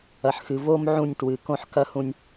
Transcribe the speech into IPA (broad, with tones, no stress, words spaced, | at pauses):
ɐ˨ħxɨ˨ vo˦m ʕũ˦˨nʲ twɨ˨kõ˦ħkɐ˦hũ˦nʲ